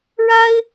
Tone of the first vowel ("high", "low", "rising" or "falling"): high